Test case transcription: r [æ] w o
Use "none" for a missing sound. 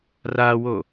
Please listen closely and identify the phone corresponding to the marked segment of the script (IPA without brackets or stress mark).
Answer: a